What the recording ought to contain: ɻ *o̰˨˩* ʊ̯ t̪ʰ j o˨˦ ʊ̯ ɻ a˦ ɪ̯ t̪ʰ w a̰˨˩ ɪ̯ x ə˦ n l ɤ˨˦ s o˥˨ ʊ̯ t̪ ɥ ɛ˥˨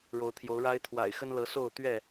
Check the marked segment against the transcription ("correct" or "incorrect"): incorrect